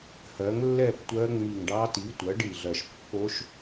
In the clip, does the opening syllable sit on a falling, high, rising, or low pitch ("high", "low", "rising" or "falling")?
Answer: rising